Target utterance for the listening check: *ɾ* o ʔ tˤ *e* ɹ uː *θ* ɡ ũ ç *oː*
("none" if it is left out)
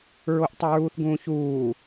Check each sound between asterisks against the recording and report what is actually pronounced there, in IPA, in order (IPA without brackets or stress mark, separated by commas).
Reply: ɹ, y, θ, uː